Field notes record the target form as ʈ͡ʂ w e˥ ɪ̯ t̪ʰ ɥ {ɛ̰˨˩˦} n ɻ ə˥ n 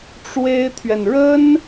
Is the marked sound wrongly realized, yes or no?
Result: yes